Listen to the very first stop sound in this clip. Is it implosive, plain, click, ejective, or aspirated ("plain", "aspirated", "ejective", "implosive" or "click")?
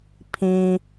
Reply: aspirated